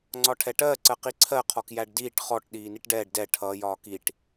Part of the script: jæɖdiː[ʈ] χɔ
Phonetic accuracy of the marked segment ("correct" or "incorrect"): correct